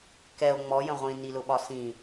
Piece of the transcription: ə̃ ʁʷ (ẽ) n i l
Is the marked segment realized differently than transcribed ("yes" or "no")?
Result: yes